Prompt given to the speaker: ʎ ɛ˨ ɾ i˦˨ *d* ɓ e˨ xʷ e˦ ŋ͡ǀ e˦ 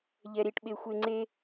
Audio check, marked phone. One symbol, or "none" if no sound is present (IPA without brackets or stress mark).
ʈ